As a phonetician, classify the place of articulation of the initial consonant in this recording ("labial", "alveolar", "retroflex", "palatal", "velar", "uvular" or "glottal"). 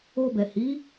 labial